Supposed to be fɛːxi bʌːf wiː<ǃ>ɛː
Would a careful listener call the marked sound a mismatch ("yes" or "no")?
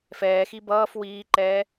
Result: no